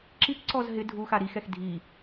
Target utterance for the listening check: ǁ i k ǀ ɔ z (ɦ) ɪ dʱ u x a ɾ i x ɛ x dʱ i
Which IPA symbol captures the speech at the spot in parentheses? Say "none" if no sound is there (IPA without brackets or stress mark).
ɦ